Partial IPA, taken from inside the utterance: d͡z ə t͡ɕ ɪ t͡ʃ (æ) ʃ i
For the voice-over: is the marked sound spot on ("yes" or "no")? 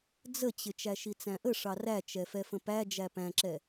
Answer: yes